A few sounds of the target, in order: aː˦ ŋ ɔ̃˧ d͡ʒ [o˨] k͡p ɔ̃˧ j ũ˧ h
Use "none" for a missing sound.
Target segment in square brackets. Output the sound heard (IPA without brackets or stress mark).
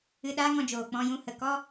oː˨